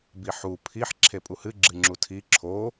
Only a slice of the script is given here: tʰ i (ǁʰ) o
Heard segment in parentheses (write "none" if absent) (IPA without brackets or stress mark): ǁʰ